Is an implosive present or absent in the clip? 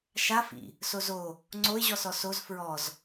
absent